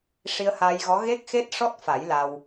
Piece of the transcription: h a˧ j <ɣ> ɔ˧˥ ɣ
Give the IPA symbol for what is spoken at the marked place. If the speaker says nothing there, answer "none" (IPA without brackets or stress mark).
ɣ